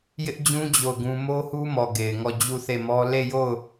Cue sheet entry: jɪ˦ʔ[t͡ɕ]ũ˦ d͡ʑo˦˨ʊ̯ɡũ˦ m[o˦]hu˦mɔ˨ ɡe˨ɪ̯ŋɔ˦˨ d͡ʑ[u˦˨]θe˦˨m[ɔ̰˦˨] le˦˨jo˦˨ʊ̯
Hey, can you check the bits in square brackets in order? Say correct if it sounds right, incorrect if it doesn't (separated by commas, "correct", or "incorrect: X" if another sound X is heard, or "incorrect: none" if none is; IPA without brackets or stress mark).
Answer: incorrect: d͡ʑ, correct, correct, incorrect: ɔ˦